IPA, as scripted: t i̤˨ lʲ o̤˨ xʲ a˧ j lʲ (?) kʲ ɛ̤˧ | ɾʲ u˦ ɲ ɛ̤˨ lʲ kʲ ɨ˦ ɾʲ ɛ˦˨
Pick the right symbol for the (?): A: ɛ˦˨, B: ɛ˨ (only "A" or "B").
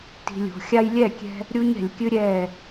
A